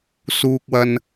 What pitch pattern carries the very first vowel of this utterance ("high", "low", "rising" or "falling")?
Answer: low